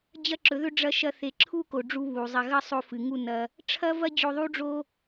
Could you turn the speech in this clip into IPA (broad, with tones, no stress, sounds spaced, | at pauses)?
d͡ʑ ɐ˦ ǁ ɵ˨˦ ð ɵ˦ ɖ͡ʐ ɐ˦ ʃ ɐ˦ θ e˧ ǁʰ u˦ k o˨ ɖ͡ʐ u˧ β u˨ zˤ ɐ˧ ɣ ɐ˦ sˤ o˧ f ɨ˨ ŋ u˦˨ n ɐ˦ | ʈ͡ʂʰ ɐ˦ v ɐ˦ d͡ʑ o˧ ðˤ u˦ ɖ͡ʐ o˦